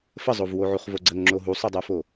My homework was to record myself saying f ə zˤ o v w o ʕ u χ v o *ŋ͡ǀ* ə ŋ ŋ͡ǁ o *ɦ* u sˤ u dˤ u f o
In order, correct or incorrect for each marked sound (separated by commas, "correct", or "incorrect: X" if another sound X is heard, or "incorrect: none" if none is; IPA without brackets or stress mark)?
incorrect: ɡ͡ǀ, correct